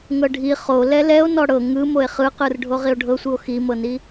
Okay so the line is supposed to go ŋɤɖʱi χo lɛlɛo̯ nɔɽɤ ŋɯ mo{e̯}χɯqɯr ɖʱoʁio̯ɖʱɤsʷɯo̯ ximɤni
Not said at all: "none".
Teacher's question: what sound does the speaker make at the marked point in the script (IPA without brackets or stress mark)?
e̯